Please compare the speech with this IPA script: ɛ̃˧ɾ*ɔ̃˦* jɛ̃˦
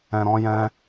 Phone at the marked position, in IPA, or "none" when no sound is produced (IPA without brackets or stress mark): ɔ̃˦